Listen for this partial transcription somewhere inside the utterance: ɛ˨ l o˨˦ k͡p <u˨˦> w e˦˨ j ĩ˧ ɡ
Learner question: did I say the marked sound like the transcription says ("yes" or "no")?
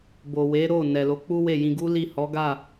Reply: no